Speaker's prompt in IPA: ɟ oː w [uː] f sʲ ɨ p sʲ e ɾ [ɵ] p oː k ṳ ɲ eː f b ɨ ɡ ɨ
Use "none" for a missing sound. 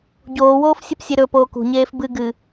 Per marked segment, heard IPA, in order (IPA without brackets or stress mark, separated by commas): oː, ɵ